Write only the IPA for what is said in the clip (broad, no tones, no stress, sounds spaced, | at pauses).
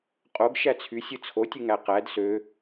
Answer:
qʼ o ɡ ʃ æ t͡sʰ y sʲ ɯ t͡sʰ o tʲ ɯ ŋ æ q æ d s ø